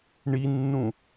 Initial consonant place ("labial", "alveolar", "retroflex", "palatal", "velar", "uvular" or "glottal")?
retroflex